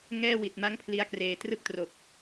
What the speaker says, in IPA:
ŋɛː˧ wi˨˩t̚ma˥˩ŋpʰli˦˥a̯kreː˨˩ trɯ˥˩k̚tro˨˩k̚

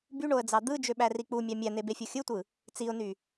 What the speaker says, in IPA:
byɳoə̯d͡zɑ d̪ɯd͡ʒøɓæri k͡pumʲɑ mʲæn̪ebefʲo xʲɯtʷɯ | t͡siʊ̯ny

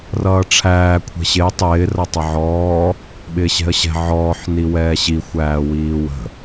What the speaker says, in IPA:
rʌːʈ͡ʂʰæː kʷʰɛ̤ɕɪː tˤɪː rʌtˤəʕɔː | ɓɪːɕɛ̤ə̯ɕɛ̤ ʕɔːħ niwɛːɕi xʷæːwiːwə̤

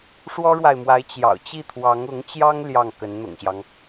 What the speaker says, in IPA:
ʂwɔ˥ɻwa˨ɪ̯mwa˧˥ɪ̯ t͡ɕjɑ̰˨˩ʊ̯t͡ɕi˥˩t̪ʰwɑ˧˥ŋ ʊ˧˥ŋt͡ɕjɑ˥ŋ ljɑ˥˩ŋ kə˧˥nn̪ʊ̰˨˩ŋɕjɑ˦ŋ

